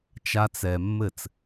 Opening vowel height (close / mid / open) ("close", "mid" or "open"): open